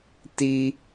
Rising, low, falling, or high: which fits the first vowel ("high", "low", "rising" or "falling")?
high